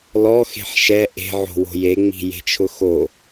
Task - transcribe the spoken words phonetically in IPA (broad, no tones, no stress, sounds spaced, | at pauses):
l ɔ x e̤ ħ ʃ ɛ ʔ e̤ ʕ o̤ w o̤ j e ŋ͡m i̤ j e̤ t͡ʃʰ ʊ x o